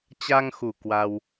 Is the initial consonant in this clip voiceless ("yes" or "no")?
yes